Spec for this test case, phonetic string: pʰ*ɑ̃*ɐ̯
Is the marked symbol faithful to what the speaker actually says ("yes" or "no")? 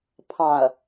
yes